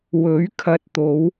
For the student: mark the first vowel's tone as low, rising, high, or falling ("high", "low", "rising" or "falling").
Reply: rising